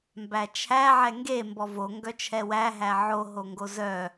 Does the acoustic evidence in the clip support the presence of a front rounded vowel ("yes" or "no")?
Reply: yes